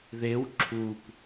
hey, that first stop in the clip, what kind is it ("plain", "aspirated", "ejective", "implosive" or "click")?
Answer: click